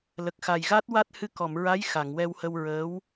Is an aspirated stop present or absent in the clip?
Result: absent